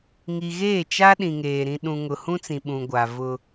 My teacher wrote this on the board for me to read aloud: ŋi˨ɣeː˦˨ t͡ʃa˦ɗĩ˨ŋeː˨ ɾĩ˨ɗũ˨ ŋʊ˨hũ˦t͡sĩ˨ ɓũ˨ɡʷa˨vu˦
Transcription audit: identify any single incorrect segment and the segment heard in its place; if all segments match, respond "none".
u˦ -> ʊ˦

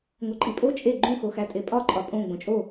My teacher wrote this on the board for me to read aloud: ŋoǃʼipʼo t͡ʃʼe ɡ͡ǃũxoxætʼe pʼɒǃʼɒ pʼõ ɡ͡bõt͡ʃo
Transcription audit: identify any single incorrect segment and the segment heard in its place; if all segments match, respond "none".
t͡ʃ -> t͡ʃʼ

